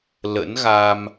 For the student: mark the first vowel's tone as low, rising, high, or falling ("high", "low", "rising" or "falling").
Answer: rising